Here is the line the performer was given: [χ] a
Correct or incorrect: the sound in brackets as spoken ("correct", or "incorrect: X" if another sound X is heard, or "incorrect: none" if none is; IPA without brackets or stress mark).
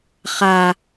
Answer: correct